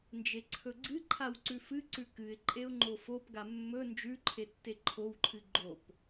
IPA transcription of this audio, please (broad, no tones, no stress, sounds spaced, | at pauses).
n d͡ʒ e ǀʰ ɵ ɡ͡ǀ ɨ ǃʰ a w ǀ ʉ f ɨ ǀ ʉ k ɨ ɪ̯ ǃʼ e ʊ̯ ŋ͡ǃ o f o p ɡ a mː ɵ n d͡ʒ ʉ ǃʰ e tː e ǃʰ o w ǃʰ ɨ ɡ͡ǃ o p